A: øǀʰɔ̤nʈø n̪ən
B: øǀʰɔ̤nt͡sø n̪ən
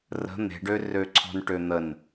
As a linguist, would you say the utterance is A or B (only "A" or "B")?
A